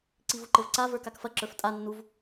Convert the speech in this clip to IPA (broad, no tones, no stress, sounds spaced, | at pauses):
ǀ i v u ǃ ɘ v ǀ a v ə˞ k a k f ɐ ǁ ə˞ f tʼ a nː u v